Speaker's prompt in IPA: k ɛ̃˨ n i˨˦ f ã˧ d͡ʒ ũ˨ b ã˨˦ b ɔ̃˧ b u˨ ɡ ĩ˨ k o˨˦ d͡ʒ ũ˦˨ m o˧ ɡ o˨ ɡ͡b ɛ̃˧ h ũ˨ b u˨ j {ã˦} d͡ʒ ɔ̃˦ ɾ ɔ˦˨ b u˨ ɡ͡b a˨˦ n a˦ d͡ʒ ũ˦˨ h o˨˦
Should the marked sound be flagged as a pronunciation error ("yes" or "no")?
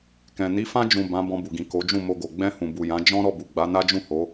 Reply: yes